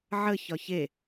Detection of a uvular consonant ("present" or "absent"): absent